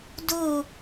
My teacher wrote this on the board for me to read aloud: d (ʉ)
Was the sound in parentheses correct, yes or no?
no